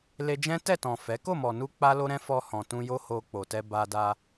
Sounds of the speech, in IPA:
le˧d͡ʒɛ̃˦ tɛ˦˨tɔ̃˨ fɛ˨˦ ko˦˨mɔ˨nu˧ k͡pa˦lo˦ɾɛ̃˦ fɔ˧hɔ̃˨tũ˧ jo˦ho˧k͡po˨tɛ˧ ba˧da˧

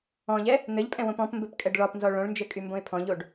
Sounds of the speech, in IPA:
ɔ̃ʎɛ | n̪ɘʎpʼɛ̃wõp ɔ̃pmbɘpkʼɛɖ ɭɒpnzɔ ɭõɭnd͡ʒɘkʼymbõɪ̯ pʰɔ̃ʎoɖ

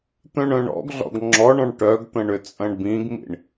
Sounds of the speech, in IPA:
t̪œ̃ɳœ̃ɳɔ̰ɡɮɔ̰ɡ ŋ͡ǁɔɳɔ̃ɳ ʈœɡt̪ɐ̃ɳ ʏt͡sʼɐ̃ɳbĩɡmḭɳ

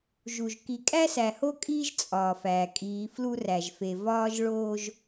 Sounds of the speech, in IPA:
ʒu˨ʒ ki˨kʼæ˦sæ˨ ho˦kʼiː˦ʒ t͡sʼɒː˨fæː˨ kʼiː˨˦flu˦ræ˨ʒfe˨ vɒː˦ʒɭoː˦ʒ

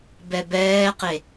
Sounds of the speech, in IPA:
bɛbɛːqe

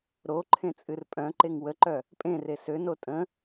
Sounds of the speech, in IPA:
ɾo ǃʰẽt͡sʼɨrpʼœ̃ǃeŋ wəǃœ | pʼẽre søno tʼə̃

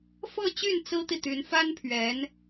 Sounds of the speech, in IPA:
fɤ˥˧t͡ɕy˥˩n t͡sɹ̩˥t̪i˥˩ t̪y˧˥nfa˥npʰɥɛ˧˥n

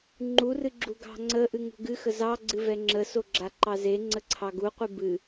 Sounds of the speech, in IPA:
ŋ͡ǃurɨɡ͡ǁu ɡɑ̤ŋ͡ǀə ʔɨŋṳɡɨxə zɑ ɡ͡ǀɨvɛŋ͡ǁəso ɡ͡ǁaǃɑze ŋ͡ǀəǀʰɑɡuqʷɨ bɨ

